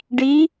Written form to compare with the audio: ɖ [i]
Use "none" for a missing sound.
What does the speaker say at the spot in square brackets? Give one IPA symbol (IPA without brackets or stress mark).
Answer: i